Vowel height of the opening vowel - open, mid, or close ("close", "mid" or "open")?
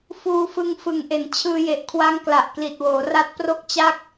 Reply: close